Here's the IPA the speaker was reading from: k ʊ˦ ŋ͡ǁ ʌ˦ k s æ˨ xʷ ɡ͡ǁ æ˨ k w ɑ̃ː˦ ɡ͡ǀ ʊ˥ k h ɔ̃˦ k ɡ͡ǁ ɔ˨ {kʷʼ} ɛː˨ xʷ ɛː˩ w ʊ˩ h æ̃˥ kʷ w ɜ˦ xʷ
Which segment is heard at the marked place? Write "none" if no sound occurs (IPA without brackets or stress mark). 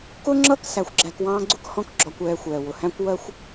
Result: kʷ